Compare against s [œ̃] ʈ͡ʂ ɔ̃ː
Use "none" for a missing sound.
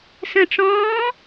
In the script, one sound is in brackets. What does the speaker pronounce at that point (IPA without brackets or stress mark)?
ə̃